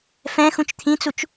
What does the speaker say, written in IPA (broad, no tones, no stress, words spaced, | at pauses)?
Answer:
fɛ̃ xũt͡ʃt̪ʰĩt͡sut͡ʃ